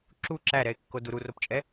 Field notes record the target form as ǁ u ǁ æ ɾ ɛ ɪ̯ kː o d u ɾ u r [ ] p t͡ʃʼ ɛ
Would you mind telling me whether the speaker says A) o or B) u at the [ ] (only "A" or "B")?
A